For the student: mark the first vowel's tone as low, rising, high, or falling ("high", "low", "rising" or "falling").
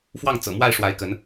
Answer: falling